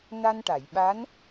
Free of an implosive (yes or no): no